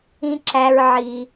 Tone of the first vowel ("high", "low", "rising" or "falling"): high